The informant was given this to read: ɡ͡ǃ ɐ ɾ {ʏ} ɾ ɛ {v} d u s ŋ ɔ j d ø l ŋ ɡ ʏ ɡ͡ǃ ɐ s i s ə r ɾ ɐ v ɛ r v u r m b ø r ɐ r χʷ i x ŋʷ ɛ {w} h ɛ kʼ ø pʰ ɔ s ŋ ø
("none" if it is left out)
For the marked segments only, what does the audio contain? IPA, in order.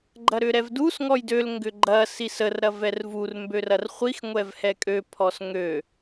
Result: ʏ, v, v

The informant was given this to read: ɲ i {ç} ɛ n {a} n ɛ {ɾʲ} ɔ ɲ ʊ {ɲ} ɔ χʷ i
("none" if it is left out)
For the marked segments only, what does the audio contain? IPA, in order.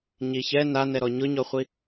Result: ç, a, ɾ, ɲ

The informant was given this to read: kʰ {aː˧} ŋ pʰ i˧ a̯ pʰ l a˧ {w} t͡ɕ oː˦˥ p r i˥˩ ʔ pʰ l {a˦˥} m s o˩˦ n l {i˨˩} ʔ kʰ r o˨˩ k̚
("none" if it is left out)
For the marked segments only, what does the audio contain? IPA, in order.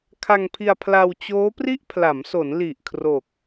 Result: a˧, w, a˩˦, i˨˩

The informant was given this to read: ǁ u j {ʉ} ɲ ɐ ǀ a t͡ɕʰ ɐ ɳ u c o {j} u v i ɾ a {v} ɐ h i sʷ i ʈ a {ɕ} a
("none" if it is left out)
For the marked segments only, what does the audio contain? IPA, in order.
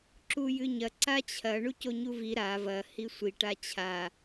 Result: ɨ, ɲ, v, t͡ɕʰ

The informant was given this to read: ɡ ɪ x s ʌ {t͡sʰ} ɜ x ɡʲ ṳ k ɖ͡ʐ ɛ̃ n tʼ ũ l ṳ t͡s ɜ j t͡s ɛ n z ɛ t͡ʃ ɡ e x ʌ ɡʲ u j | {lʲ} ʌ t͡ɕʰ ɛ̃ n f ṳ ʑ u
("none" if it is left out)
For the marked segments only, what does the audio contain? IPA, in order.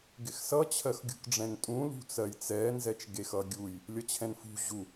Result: t͡ɕʰ, lʲ

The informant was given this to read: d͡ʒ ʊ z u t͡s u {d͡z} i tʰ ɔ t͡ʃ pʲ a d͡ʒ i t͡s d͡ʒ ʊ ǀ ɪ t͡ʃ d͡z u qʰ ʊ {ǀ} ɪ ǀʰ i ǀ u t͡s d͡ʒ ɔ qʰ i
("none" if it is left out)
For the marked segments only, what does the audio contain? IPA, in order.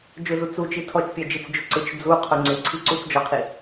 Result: t͡ʃ, ŋ͡ǀ

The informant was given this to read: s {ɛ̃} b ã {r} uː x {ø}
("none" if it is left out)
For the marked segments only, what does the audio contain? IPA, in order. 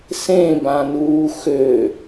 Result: ẽ, n, ø

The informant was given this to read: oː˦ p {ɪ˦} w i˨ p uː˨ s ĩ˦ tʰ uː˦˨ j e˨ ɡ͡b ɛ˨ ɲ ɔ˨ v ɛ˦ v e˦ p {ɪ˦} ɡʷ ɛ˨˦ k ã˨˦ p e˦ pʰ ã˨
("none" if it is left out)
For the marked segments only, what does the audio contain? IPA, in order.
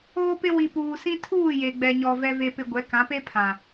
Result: ɪ˦, ɪ˦

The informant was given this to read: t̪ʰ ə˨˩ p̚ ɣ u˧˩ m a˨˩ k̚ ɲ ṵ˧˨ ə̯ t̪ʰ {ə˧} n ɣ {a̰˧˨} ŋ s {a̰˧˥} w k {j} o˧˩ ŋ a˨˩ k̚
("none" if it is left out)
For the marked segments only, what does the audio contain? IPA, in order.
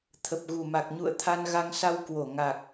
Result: a˧, a˧, a˧, w

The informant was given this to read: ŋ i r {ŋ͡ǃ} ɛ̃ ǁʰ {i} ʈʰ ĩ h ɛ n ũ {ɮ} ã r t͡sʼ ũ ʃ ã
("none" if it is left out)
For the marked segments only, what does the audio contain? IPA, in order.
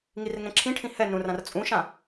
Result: ŋ, ĩ, r

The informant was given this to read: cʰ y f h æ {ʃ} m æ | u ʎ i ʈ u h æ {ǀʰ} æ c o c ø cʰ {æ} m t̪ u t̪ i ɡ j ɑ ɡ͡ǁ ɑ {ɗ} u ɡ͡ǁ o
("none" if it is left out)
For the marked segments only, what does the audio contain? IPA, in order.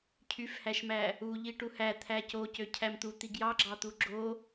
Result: ʃ, t̪ʰ, æ, t̪

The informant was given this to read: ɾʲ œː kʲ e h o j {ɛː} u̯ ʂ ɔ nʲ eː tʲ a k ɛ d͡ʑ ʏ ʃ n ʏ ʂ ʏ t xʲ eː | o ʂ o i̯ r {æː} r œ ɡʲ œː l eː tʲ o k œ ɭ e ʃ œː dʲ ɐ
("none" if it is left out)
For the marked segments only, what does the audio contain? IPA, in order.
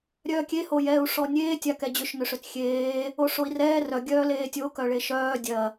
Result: ɛː, ɛː

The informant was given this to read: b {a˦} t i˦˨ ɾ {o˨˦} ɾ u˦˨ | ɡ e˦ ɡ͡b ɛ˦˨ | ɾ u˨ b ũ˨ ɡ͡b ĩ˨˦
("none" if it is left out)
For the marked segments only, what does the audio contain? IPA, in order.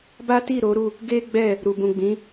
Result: a˦, o˨˦

